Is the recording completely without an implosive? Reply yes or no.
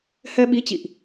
no